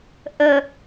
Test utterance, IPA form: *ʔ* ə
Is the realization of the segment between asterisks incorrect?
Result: no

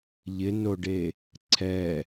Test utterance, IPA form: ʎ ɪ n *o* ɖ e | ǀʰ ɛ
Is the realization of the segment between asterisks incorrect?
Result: no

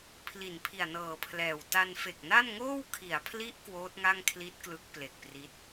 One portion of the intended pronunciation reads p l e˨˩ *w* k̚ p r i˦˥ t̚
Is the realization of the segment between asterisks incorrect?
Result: yes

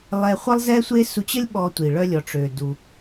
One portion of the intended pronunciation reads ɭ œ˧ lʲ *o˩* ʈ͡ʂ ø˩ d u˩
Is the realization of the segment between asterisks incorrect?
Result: yes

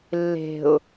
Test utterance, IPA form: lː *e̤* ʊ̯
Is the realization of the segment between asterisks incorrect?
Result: no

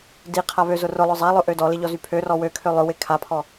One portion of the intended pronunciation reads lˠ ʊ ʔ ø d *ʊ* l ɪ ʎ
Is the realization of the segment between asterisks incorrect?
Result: yes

